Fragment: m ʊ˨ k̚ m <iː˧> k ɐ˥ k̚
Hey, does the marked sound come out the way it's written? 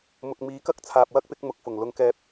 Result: no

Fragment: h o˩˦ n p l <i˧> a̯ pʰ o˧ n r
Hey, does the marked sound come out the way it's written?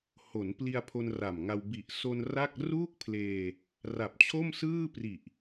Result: yes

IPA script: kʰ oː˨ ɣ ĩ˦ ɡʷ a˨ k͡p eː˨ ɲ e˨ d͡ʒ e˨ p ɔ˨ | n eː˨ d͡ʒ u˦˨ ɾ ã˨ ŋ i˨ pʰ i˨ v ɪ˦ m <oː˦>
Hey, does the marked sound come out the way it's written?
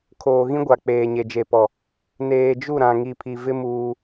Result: no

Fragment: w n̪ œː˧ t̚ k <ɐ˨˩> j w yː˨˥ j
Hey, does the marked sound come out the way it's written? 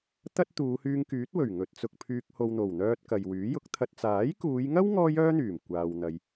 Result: no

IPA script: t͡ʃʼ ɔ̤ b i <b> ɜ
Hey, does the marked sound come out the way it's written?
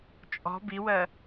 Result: no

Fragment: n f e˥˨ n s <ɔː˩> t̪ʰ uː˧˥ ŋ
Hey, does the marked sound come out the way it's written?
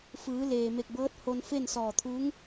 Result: no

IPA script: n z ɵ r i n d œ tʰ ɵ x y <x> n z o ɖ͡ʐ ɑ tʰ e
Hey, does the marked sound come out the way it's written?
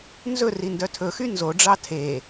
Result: no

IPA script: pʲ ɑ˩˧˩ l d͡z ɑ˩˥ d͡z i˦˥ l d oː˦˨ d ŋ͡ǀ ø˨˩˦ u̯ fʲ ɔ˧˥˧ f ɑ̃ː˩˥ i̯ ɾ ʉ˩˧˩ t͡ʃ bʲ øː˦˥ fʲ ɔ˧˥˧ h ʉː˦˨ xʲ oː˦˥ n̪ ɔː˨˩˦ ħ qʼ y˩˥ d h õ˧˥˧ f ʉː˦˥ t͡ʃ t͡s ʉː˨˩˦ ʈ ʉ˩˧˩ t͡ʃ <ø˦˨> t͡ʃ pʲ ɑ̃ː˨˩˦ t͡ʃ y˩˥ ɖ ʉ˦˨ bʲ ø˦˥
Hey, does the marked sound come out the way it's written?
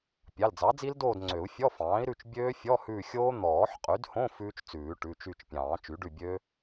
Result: no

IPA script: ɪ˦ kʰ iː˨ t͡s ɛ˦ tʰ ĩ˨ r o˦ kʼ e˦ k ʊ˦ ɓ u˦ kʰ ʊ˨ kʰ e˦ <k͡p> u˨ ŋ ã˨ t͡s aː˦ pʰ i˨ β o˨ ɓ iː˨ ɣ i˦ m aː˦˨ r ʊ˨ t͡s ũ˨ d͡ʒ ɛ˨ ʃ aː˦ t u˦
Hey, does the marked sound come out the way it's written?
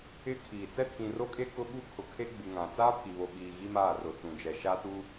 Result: no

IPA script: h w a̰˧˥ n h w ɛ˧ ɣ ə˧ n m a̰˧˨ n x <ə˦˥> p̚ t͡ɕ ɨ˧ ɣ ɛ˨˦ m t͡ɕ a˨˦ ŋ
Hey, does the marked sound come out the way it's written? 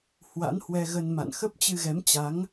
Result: yes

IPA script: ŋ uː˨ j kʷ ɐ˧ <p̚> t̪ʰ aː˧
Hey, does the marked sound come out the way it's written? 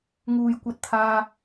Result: no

